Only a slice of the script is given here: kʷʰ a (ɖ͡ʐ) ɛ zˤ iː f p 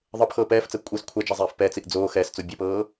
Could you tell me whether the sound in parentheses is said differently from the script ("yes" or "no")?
yes